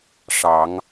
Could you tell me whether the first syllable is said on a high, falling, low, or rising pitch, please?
rising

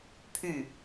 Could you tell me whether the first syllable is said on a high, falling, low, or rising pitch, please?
falling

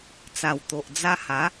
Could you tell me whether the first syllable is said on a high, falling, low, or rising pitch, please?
low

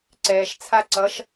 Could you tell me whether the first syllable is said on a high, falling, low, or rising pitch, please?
low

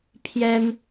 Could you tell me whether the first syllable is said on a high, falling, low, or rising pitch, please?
high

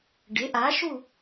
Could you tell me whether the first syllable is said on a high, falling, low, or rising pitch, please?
rising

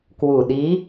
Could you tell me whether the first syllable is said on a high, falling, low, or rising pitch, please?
low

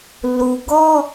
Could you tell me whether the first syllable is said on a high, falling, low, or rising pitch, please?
low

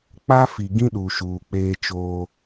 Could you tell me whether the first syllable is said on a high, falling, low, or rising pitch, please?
high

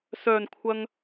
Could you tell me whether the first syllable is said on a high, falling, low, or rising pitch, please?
low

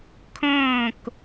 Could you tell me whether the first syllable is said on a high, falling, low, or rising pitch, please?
falling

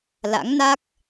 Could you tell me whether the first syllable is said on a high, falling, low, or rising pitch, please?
rising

